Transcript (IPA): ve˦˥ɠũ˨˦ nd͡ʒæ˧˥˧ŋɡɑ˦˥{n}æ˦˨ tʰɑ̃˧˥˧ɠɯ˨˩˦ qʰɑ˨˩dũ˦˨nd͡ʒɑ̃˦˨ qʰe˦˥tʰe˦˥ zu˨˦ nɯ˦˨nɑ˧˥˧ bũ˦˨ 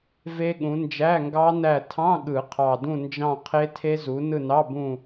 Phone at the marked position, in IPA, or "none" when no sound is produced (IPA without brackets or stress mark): n